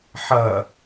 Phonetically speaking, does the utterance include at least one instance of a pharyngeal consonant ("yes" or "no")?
yes